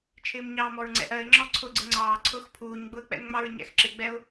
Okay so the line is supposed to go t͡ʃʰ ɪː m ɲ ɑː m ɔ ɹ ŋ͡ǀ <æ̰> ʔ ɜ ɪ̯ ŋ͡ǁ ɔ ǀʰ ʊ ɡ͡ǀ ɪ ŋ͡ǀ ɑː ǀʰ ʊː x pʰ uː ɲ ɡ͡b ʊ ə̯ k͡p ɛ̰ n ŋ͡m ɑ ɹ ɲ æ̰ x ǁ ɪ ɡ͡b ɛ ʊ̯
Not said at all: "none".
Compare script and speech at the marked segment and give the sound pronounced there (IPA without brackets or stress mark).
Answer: ɛ̰